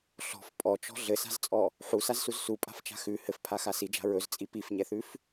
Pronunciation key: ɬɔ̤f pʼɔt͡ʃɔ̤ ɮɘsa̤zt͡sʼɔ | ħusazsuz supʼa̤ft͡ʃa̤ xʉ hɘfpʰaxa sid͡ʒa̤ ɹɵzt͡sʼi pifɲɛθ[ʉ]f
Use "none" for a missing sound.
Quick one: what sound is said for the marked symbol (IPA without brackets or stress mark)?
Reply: ʉ